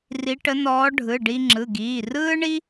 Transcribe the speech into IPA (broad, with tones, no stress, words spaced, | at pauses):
ri˧˥ʈə˧˥nɔː˧˥ ɖʱɯ˩˧˩ɖi˧ŋ͡ǁɯ˩˧˩ɡiː˩˧˩ rɯː˥ɳi˥